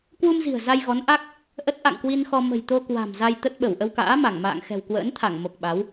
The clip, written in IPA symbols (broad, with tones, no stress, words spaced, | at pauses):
kwu˧mzi̤˨˩ə̯ za˧jɣɔ˨˦nʔa˦˥k̚ | ʔə˦˥t̚ʔa̰˧˨ŋkwi˧n xɔ˧ mə̤˨˩jt̪o˧ kwa̤˨˩m za˧jt̪ə˦˥t̚ɓə˧˩w ʔə˧wka̰ː˧˥ma˧˩ŋ ma̰ː˧˨ŋxɛ̤˨˩wkwə̰ː˧˥nt̪ʰa˧˩ŋ mo˨˩k̚ɓa˨˦w